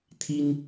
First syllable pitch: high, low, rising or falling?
high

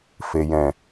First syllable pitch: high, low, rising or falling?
low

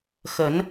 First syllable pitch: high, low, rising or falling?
rising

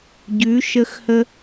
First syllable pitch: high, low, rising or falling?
rising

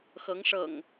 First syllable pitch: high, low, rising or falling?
rising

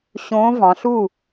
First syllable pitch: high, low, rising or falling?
rising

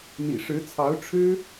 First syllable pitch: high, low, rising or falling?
low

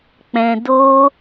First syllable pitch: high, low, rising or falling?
low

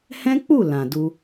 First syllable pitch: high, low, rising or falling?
high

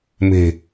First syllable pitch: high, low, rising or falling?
low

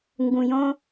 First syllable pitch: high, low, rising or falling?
low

